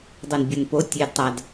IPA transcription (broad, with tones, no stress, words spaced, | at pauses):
dˤɤ˨nbʲɤ˨npo˨˦ tʲe˨dtˤa˨d